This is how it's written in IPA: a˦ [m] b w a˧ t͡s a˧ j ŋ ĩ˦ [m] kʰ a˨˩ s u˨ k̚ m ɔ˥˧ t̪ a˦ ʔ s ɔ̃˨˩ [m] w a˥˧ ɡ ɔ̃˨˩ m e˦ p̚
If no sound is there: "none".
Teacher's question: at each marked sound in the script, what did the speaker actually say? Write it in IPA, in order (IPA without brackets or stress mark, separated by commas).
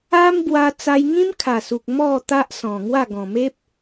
m, m, ŋ